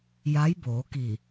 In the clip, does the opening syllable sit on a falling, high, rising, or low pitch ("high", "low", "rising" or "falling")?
rising